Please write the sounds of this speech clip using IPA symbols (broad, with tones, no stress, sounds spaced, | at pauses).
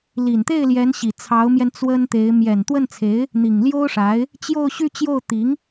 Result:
l i˨˩ n t̪ e˥˩ ɪ̯ l j ɛ˧˥ n ɕ i˨˩ t͡sʰ ɑ˧˥ ʊ̯ m j ɛ˧ n t͡s w ə˥ n t̪ e˧˥ ɪ̯ m j ɛ˨˩ n t̪ w ə˥˩ n t͡sʰ e˧˥ ɪ̯ | n̪ i˨˩ ŋ l j o˥ ʊ̯ ʂ a˧˥ ɪ̯ | t͡ɕ j o˥˧ ʊ̯ ɕ y˥˧ t͡ɕ j o˥˩ ʊ̯ t̪ i˧˥ ŋ